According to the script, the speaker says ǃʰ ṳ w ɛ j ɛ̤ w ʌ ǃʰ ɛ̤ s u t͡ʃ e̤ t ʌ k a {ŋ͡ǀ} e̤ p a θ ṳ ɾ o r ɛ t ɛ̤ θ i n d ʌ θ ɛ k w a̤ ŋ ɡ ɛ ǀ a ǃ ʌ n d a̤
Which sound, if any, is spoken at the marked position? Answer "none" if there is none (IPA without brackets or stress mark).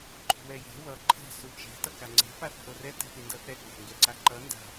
ŋ͡ǀ